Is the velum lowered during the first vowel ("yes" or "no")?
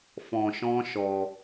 yes